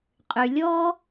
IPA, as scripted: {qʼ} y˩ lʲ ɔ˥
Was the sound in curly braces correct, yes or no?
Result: yes